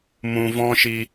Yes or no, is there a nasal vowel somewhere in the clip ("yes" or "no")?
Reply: yes